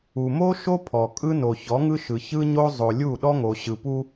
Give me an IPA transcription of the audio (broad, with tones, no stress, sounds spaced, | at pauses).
u˨ m o˦ ʃ o˦ pʰ ɔ˨ kʼ ɯ˦ n o˨ ç ɔ˨˦ ŋ ɯ˦ ʃ ɯ˨ ç ɯ˦ ɲ o˦ zˤ o˨ lʲ u˦˨ ɗ ɔ˦ ŋ o˨ ɕ ɯ˨ p u˦